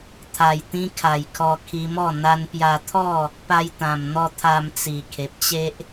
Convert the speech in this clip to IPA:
t̪ʰ a˨˩ j t̪ ĩ˧ kʰ a˨˩ j kʰ ɔ˧ kʰ i˧ m ɔ˥˧ n̪ a˧ n p j a˧ t̪ʰ ɔ˥˧ | p a˧ j t̪ ã˨˩ m n̪ ɔ˧ t̪ʰ a˧ m t͡s i˨˩ kʰ e˨ p̚ t͡ɕ e˦ ʔ

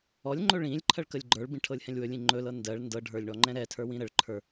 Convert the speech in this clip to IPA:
ɔ lʲ ŋ͡ǃ ɵ ɭ ĩ lʲ ǃʰ ɜ ɭ k ə lʲ ɡ͡ǃ ə˞ ɭ b ĩ ʈʰ ɤ lʲ h ɛ̃ lʲ w ɵ lʲ ĩ ŋ͡ǃ ɵ l ɤ n d ɜ ɭ n d ɤ ɖʱ ə˞ lʲ ɳ ɔ ŋ͡ǃ ɛ̃ ɾ ɛ tʰ ə˞ w ĩ ɾ ə ɭ ǃʰ ə˞

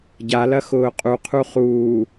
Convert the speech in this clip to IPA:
ɟ a l ɐ x ʊː qʼ u qʰ u χ uː

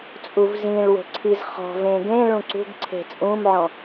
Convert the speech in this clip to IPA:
t͡sʼ u v z ĩ ɭ w o̤ ǀʰ i z χ ɔ̤ v ẽ ɡ ẽ ɭ ũ ǀ ṳ ɡ ǀʰ e̤ t͡sʼ ũ m ʕ ɔ̃

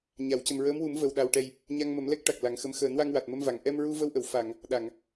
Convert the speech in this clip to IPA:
ɲ a˨˩˨ w c ə˨˩ m ɹ əː˧˥ m w u˨˩˦ m v ə˨˩ w ɗ a˨˩ w ʈ ɛ˨˩ j | ɲ a˧ ŋ m ə˨˩˦ m l ɛ˦˥ k̚ ʈ a˨˩ k̚ l a˨˩˦ ŋ x ə˧˥ m x əː˨˩˦ n w a˧ ŋ w a˨˩ t̚ m ə˧ m v a˨˩˨ ŋ ʔ ɛ˧ m ɹ u˧ v ə˧ w ʔ ə˨˩˨ w f a˨˩˨ ŋ | ɗ a˨˩˨ ŋ

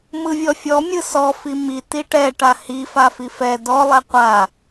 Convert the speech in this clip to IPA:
m ɯ vʲ ɔ fʲ ɔ mʲ ɯ s ɔ f i m i t i ʈ ɛ ʈ a h i f a f i f ɛ d ɔ lˠ ɛ qʷ a

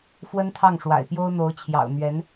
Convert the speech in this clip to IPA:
f w ə˥ n t̪ʰ ɑ˥˩ ŋ ʂ w a̰˨˩ ɪ̯ p j o˥ ʊ̯ n̪ o˧˥ ʊ̯ t͡ɕʰ j ɑ̰˨˩ ʊ̯ n̪ ɥ ɛ˧˥ n

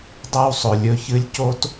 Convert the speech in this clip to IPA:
dˤ a˦ w sˤ ɵ˨ lʲ ɵ˧ ç ɨ˦ lʲ c o˦ t

